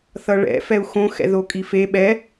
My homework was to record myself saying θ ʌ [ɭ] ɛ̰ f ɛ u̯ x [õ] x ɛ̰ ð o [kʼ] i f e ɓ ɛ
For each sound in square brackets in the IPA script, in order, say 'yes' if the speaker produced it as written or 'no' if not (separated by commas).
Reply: yes, yes, yes